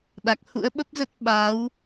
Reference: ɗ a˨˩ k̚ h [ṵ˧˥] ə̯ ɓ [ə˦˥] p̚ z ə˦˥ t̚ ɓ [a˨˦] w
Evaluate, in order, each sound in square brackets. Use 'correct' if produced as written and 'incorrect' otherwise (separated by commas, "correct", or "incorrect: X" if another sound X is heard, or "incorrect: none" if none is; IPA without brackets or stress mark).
correct, correct, correct